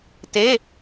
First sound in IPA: t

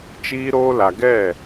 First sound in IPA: t͡ʃ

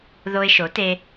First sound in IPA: ð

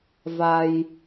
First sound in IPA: v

